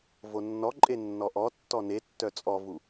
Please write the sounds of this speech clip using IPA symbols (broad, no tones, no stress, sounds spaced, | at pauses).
v o nː ɔ ǃʼ e nː ɔ ʔ ɔ tː ɔ n e tː œ t͡sʼ ɔ v u